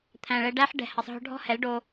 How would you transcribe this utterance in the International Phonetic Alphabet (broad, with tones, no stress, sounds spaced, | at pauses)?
t̪ʰ æ̃˨ ɭ ɛ˧ ɖ æ˦ ħ ɖ ɛ̤˨ h ɐ˨ sˤ ɦ ɔ̤˧ ɖʱ ɔ̤˦ h ɛ˨˦ l ɖ o˧